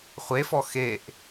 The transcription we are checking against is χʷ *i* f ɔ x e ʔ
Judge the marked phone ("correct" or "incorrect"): incorrect